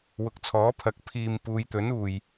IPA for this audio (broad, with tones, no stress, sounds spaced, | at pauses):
w ʊ˨ k̚ t͡sʰ ɔː˨˥ pʰ ɐ˨˥ k̚ pʰ iː˨ m p uː˨˧ j t̪ ɵ˨˥ n uː˨ j